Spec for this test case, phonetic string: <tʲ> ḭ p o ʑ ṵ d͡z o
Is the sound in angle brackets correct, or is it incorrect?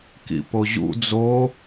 incorrect